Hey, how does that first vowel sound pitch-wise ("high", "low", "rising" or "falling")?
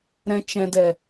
low